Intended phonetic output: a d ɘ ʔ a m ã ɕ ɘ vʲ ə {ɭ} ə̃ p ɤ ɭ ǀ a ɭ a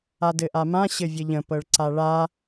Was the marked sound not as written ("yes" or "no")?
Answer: yes